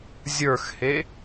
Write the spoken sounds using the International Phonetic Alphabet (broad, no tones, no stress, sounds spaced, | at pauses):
zʲ ə˞ x h e